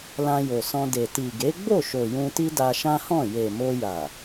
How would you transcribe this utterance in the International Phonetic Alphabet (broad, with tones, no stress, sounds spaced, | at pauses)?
l ã˧ j o˨ s ɔ̃˧ d e˨ t i˨ ɡ e˨˦ ɡ͡b o˦˨ ʃ o˨ j ũ˧ t i˦ d a˧ ʃ ã˦ h ɔ̃˦˨ j e˨ m o˧ j a˨